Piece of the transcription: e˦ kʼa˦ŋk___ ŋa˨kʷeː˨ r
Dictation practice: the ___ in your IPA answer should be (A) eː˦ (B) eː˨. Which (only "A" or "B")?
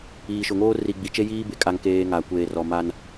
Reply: A